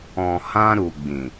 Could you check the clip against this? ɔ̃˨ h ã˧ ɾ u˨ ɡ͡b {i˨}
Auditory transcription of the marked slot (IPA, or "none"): ĩ˨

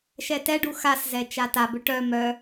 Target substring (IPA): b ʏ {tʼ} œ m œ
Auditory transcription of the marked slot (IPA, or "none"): ʈ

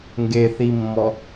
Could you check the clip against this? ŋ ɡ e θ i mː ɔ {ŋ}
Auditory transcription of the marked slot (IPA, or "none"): none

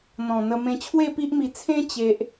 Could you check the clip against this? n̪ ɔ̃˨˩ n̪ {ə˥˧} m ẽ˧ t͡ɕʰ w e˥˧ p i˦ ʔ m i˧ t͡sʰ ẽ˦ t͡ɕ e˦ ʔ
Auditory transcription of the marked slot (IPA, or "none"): ə˧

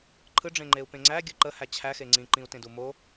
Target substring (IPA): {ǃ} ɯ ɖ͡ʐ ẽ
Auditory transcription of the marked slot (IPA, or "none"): ǃʰ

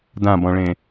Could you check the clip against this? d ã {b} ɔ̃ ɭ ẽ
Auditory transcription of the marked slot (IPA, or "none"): b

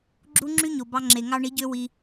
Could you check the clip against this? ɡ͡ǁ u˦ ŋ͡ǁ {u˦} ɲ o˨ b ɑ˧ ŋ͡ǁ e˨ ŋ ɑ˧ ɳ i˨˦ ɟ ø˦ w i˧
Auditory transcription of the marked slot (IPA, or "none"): y˦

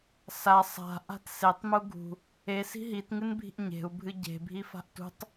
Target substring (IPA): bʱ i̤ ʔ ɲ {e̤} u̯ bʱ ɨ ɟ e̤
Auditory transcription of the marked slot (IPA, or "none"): e̤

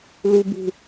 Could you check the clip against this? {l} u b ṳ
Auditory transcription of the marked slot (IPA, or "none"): l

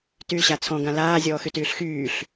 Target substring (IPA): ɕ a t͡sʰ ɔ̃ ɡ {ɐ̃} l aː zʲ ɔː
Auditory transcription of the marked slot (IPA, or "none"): ã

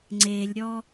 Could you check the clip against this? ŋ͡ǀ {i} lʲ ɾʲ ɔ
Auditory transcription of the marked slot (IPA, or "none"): e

